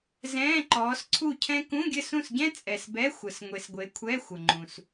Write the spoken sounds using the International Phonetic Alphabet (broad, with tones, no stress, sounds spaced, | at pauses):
z ɛ̃ː˧˥˧ ǃ ɔː˨˦ s ǀʰ u˥˨ cʰ ɛ̃˥ k ũ˧˥˧ ɡʲ ɘ˥˨ s ũ˥˨ s ɟ ɛ̃˥ t͡sʼ ɛ˨ s b ɛ˧˥˧ xʷ ə˨ s ŋʷ e˨ s ɡʷ e˨˦ kʷʰ ɛ˧˥˧ xʷ ə˨ ŋ͡ǃ ũ˨ s